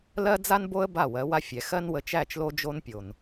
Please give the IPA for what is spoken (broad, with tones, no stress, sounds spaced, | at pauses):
l ɜ˦ d͡z a˦ n b o˦ ə̯ b a˦˨ w ɜ˨˦ w a˦ fʲ ɛ˨ x ɜ˦ n w ə˨ t͡ʃ æ˦˨ t͡ʃ l o˦ d͡ʒ o˦ n pʲ o˨ n